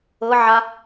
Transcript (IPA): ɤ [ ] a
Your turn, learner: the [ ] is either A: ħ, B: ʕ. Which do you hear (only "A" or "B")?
B